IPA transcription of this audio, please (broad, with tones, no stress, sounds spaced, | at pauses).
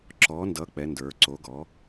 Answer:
ǁ ɔ˩˥ n d ʌ˩˥ k͡p ɛ˩˧ n d ə˞˩˧ ǀ o˩˥ ɡ ɔ˩˥